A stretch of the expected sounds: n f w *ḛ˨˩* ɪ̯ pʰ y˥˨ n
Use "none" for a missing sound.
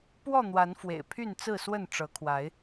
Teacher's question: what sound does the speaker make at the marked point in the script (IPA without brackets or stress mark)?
ḛ˨˩